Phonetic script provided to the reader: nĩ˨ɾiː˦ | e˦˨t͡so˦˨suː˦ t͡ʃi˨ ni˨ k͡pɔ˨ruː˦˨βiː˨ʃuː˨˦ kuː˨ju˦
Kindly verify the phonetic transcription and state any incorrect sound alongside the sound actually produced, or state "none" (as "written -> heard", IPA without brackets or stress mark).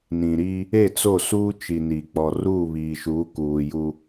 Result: none